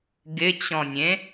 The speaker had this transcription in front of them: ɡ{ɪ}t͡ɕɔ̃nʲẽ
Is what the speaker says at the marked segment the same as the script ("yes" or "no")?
yes